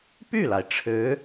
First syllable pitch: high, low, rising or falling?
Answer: falling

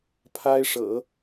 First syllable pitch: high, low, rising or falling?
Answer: high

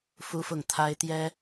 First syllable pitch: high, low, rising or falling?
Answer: high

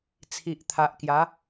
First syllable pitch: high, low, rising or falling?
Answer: low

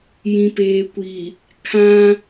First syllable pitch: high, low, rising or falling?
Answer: low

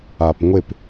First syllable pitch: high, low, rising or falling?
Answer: low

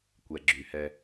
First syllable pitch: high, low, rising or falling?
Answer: low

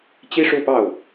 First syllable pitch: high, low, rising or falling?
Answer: high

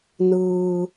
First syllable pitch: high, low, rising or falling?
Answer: low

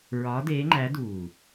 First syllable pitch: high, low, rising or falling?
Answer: rising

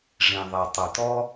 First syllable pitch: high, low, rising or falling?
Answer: low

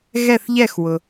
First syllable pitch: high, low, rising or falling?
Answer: falling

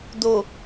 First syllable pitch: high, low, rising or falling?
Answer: low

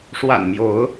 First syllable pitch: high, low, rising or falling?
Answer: low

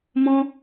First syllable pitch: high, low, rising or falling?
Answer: high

